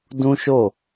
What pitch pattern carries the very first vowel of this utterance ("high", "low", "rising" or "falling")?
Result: high